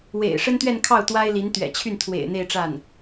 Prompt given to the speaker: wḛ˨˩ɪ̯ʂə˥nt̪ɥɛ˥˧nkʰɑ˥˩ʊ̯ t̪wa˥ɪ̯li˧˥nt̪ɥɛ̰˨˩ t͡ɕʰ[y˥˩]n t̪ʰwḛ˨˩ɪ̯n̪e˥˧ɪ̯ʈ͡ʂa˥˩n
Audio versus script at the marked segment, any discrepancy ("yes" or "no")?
no